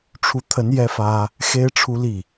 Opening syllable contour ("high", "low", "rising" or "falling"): rising